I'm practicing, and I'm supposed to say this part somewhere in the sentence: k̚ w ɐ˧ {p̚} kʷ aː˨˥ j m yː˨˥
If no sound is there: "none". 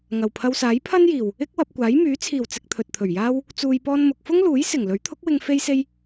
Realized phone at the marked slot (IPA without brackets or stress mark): p̚